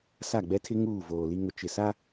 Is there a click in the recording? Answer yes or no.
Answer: no